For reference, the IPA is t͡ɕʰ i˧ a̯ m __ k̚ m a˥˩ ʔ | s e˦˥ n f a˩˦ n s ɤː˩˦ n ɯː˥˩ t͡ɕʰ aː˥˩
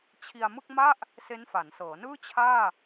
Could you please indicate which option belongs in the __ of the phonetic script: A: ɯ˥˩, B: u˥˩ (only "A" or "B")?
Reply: A